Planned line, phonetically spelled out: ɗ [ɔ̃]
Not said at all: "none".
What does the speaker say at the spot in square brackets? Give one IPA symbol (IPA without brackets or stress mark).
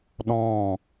ɔ̃